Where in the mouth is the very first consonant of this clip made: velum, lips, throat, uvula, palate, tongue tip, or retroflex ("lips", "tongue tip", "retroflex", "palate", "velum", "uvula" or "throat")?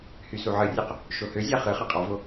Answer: throat